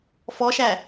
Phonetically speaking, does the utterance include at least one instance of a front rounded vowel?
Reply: no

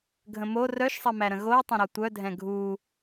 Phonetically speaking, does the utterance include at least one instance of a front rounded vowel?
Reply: yes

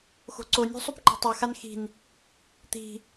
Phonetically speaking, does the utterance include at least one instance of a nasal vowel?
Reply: no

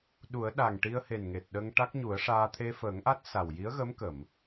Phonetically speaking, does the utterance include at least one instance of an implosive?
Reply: yes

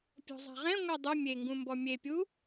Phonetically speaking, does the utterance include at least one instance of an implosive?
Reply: no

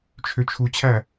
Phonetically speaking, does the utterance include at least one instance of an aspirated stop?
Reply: yes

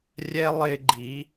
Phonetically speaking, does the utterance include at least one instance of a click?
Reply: yes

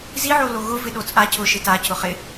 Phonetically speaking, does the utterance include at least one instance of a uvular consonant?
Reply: yes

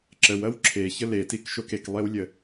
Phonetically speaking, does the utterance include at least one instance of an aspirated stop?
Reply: yes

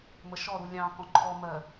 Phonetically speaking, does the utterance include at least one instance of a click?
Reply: yes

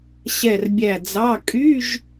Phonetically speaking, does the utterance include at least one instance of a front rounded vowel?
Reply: yes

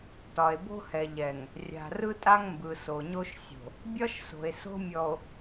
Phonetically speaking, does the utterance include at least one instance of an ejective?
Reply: yes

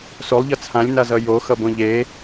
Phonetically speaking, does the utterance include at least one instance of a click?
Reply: no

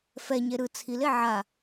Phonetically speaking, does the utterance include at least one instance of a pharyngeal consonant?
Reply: yes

